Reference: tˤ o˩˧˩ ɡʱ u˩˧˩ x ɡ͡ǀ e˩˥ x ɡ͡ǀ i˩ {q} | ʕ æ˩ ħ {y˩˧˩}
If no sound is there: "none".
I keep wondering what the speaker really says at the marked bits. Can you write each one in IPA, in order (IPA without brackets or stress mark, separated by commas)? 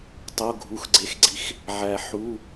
x, u˩˧˩